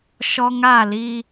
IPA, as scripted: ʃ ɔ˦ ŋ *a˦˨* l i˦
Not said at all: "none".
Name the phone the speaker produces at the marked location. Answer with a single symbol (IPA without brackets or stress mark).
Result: a˦˨